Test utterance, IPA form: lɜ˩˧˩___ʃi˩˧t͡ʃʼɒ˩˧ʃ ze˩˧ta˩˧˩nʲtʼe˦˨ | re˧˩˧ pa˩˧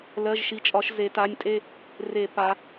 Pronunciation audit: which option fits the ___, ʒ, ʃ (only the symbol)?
ʒ